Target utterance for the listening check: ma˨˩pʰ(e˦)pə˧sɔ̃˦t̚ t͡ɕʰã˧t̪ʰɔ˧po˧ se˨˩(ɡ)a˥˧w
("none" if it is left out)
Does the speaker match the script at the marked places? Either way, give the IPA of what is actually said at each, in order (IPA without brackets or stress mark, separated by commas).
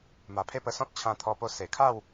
e˦, kʰ